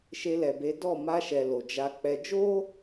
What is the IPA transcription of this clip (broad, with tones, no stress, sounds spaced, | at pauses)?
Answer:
ʃ e˧ l ɛ˨ b e˨˦ d ɔ˦˨ m a˧ ʃ ɛ˨ l o˨ d͡ʒ a˧ k͡p ɛ˧ d͡ʒ o˦